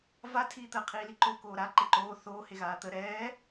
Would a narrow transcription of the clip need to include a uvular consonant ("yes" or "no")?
yes